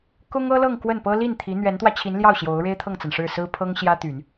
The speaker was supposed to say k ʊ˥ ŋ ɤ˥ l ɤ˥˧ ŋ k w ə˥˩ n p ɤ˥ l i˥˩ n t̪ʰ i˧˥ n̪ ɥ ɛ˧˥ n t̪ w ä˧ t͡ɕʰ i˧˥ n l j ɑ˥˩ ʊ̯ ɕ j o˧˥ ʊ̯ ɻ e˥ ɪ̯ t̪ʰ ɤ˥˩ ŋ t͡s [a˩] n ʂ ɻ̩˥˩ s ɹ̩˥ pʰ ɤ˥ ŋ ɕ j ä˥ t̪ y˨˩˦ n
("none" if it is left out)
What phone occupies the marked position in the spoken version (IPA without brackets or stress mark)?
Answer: a˩